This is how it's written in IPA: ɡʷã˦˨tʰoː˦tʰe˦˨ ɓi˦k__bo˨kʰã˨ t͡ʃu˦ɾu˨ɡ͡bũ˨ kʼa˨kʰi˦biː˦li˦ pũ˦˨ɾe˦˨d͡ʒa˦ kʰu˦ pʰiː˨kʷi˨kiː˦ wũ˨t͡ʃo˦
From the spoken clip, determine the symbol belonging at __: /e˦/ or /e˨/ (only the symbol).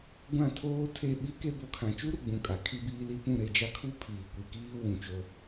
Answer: e˦